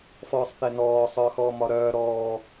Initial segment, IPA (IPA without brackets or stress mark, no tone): f